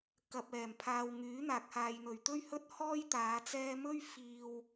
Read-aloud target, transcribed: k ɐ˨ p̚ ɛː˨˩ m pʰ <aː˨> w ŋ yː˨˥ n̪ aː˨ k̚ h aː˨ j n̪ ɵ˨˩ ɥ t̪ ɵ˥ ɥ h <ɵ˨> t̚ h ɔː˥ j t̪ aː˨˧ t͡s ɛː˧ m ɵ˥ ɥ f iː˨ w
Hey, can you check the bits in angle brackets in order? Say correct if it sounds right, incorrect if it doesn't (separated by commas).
correct, incorrect